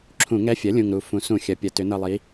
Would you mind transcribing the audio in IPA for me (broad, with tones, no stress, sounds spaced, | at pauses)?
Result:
ǁʰ ũ˧˩˧ ŋ ɛ˧˥ fʲ ɐ˩˥ lʲ ũ˨˩ ŋ ɾ u˨˩ f ũ˩˧ s ũ˧˩˧ xʲ ɐ˩˧ pʲ ɐ˩˧ t ʏ˩˧ n ɤ˨˩ lˠ i˩˧